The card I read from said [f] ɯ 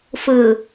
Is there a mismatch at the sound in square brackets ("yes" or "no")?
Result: no